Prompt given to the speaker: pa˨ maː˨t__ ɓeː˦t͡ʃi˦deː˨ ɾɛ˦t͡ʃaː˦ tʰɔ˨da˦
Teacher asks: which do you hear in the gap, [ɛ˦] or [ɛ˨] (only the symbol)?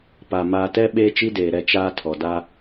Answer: ɛ˦